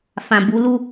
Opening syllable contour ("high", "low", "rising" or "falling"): low